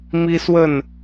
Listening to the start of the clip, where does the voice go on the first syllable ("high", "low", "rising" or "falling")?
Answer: high